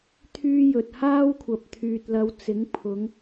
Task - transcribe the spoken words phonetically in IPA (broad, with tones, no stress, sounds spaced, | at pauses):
t̪ʰ yː˥ j ɵ˨ t̚ h aː˥ w kʷʰ ɐ˨ p̚ t̪ʰ yː˨ t̚ l ɐ˨˧ w t͡s ɪ˨˥ ŋ pʰ ʊ˨˧ ŋ